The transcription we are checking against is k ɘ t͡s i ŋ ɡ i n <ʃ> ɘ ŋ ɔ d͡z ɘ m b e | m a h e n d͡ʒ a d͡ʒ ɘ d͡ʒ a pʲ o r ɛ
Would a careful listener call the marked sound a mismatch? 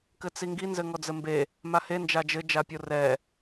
yes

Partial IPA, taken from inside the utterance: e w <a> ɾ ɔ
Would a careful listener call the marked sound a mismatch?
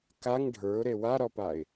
no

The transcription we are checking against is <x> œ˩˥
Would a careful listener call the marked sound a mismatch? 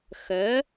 no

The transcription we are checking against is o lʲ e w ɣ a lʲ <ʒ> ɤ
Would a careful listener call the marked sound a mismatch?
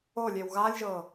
no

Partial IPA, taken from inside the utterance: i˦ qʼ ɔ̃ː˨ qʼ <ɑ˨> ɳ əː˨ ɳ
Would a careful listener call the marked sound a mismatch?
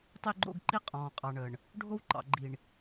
no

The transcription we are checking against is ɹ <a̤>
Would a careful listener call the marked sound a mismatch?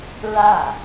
yes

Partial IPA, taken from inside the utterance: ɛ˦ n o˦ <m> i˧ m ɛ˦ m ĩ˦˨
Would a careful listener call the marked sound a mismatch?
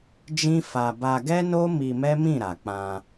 no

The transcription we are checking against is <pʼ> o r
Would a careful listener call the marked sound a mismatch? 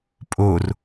no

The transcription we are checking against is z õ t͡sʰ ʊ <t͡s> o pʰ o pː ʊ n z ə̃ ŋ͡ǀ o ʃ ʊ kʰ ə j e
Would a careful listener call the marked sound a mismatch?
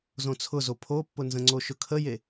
yes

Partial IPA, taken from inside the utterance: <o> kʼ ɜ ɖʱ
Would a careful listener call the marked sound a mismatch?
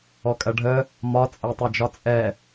yes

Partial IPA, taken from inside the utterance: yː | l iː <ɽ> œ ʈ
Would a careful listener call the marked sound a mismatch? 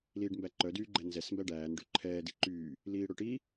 no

